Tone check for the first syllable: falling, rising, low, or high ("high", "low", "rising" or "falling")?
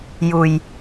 low